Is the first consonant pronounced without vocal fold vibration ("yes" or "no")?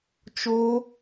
yes